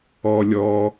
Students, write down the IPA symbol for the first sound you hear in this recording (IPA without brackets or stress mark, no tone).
ɔ